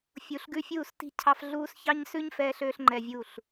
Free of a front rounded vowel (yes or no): no